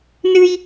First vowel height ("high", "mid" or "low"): high